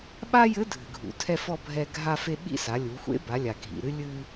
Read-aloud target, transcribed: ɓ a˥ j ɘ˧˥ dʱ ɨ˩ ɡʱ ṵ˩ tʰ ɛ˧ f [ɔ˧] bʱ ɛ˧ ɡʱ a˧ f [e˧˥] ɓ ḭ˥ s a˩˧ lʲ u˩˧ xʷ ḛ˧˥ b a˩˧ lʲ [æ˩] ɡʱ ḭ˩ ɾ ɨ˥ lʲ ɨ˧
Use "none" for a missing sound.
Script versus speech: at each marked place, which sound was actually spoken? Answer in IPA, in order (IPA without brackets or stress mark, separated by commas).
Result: ɔ˧, e˧, a˩